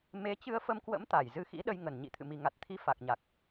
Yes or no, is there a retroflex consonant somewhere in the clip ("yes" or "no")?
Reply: no